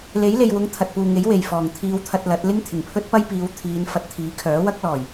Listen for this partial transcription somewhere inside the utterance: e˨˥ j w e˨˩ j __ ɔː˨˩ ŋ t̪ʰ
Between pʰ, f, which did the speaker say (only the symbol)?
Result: f